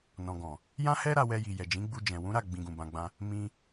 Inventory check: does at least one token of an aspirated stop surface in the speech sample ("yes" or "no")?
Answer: no